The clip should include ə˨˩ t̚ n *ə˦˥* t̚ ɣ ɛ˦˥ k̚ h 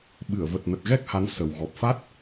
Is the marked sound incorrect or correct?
incorrect: ə˨˩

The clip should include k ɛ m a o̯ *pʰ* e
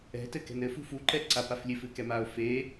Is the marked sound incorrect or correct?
incorrect: f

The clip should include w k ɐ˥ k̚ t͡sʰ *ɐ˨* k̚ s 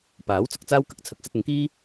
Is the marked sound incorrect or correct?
incorrect: ɐ˨˥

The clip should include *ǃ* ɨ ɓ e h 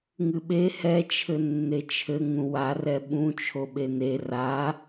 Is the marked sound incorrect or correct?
incorrect: ŋ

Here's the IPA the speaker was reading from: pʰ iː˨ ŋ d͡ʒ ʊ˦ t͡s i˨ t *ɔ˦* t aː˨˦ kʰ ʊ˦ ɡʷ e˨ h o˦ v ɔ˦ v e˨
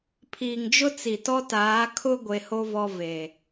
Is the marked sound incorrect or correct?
correct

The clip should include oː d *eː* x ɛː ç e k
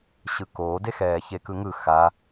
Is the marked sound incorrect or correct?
incorrect: e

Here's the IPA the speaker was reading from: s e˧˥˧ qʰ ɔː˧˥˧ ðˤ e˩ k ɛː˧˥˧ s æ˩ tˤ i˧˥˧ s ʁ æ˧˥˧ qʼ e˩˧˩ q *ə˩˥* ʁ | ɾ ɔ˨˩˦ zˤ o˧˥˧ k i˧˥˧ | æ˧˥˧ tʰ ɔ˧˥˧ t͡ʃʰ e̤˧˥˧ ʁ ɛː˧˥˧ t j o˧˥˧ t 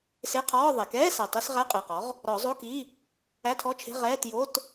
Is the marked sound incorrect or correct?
incorrect: ɔ˩˥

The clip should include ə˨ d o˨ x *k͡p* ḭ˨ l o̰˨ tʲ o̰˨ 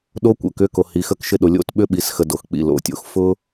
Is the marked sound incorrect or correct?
correct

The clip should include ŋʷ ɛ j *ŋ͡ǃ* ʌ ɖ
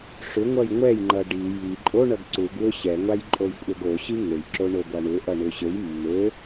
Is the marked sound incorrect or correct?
correct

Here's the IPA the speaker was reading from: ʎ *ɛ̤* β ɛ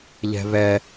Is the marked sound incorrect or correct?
correct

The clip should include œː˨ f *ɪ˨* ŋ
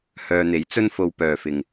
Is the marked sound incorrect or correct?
correct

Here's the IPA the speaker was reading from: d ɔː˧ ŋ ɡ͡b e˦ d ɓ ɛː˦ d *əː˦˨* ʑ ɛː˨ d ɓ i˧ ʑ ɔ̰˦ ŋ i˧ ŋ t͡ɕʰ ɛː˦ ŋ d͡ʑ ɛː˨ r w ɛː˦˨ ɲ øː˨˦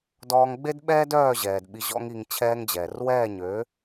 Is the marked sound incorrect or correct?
incorrect: œː˦˨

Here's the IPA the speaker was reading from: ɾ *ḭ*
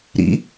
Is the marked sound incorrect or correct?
correct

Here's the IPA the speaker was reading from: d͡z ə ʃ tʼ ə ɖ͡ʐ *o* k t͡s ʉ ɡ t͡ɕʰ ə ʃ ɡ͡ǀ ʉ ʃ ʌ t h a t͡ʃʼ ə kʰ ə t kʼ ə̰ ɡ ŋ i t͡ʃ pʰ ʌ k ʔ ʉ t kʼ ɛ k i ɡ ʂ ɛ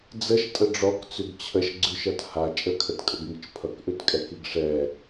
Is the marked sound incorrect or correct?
incorrect: ɔ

